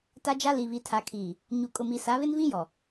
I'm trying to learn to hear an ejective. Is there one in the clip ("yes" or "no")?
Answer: yes